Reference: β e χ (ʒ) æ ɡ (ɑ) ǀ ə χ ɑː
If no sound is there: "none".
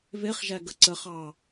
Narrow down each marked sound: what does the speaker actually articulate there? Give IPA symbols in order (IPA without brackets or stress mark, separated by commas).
ʒ, ə